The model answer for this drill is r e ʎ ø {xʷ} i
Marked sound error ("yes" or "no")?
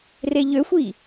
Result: no